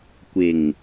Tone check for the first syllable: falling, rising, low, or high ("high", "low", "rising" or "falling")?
low